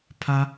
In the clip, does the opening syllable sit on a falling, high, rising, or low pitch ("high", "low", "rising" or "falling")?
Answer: high